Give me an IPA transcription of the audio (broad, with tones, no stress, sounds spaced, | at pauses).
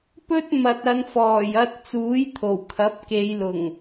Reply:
p ɵ˥ t̚ m ɐ˨ t̚ ɐ˨˧ n f ɔː˨˩ j ɐ˧ t̚ t͡s uː˨˥ j t̪ʰ o˨˩ w kʰ ɐ˨˥ p̚ k e˨˧ j l ʊ˨˩ ŋ